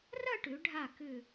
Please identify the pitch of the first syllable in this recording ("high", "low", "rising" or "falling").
falling